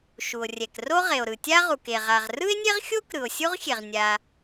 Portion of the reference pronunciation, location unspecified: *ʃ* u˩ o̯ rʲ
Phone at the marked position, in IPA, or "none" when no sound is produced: ʃ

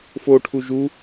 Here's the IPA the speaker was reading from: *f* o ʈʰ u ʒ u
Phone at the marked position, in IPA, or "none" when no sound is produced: f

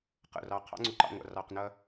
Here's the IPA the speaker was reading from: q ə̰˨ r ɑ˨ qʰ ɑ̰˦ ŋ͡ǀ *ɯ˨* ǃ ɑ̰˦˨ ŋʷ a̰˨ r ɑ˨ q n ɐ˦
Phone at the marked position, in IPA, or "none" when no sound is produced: u˨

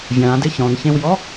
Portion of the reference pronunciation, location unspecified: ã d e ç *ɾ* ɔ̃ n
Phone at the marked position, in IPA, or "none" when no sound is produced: ɾ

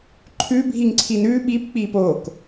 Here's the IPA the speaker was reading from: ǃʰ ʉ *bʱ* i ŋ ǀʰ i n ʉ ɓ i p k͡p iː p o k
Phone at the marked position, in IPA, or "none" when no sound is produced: bʱ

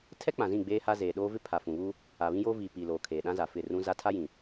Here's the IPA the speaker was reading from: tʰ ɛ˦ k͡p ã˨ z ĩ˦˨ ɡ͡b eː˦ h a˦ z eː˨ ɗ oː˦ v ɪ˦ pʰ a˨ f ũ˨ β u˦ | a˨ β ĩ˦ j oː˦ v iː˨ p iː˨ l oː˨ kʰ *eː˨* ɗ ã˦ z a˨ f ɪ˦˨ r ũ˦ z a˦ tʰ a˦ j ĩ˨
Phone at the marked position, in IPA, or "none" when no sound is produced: eː˨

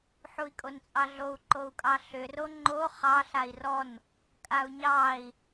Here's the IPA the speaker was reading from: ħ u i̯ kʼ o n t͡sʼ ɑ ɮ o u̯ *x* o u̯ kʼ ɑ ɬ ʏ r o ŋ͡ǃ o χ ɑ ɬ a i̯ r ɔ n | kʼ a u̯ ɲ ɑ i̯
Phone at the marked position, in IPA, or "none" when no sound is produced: ǃ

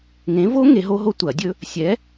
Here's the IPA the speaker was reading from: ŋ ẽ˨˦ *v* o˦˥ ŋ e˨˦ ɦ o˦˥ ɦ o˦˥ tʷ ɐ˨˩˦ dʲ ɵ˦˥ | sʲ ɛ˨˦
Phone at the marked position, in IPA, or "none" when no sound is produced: v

